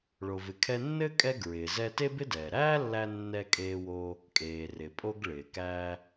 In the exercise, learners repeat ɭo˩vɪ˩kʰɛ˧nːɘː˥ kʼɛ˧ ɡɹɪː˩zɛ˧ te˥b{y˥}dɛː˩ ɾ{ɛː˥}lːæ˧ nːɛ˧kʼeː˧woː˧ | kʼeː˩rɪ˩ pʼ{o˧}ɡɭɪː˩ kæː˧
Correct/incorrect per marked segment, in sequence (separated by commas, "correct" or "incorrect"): incorrect, incorrect, correct